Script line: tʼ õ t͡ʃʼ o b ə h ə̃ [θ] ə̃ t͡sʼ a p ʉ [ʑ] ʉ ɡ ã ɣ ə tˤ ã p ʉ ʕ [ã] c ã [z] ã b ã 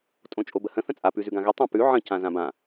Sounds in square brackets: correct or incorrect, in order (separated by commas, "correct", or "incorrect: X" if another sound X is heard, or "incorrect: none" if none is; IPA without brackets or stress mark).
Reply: correct, incorrect: z, incorrect: ə̃, correct